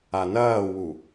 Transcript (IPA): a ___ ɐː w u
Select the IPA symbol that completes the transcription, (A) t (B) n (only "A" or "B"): B